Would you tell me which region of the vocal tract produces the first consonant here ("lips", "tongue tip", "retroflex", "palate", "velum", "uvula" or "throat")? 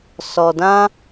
tongue tip